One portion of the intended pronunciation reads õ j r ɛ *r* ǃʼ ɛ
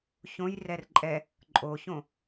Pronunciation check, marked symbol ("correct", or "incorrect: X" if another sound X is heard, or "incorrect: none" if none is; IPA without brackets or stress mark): correct